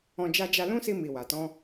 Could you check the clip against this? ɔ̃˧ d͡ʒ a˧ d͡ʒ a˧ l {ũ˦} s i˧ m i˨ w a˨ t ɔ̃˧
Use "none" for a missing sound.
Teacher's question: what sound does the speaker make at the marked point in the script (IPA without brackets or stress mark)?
ũ˦